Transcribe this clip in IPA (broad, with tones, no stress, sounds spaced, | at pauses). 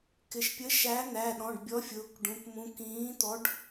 k ɪ˩˧ ʃ pʲ ə˨˥ ʃ æ˨˥ n̪ æ˩˧˩ ɗ ɔ̃˩˧˩ ɖ bʲ ɔ˨˥ fʲ ʊː˩˧˩ k ɖ ũ˩˧˩ p m ũ˨˥ k ĩː˨˥ t̪ ɔ˨˥ ɖ